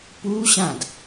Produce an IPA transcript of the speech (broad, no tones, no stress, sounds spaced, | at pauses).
p u ɕ ã d